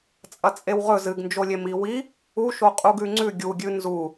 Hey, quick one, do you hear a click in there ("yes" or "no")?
yes